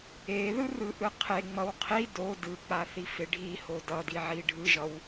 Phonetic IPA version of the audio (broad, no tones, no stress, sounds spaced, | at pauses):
e ð ɯ r ɯ ʔ ɯ qʰ e ŋ͡m ʌ w qʰ i d o d ɯ k͡p a θ i f e ɖʱ i h o d ʌ d i ʕ i ɖʱ ɯ ʒ ʌ w